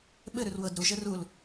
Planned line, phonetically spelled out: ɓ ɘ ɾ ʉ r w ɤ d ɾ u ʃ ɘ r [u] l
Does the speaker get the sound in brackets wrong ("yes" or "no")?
no